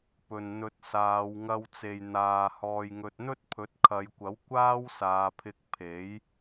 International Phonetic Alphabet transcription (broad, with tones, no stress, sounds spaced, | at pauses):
p ɵ˨ n n̪ ɵ˧ t̚ s aː˨˧ w ŋ ɐ˧ w t͡s e˨ j n̪ aː˨ h ɔː˧ j ŋ ɵ˧ t̚ n̪ ɵ˥ t̚ pʰ ɵ˨˥ t̚ kʰ ɐ˨˧ j kʷ ɐ˨˥ w kʷ aː˥ w s aː˨˧ pʰ ɪ˧ k̚ pʰ e˨˥ j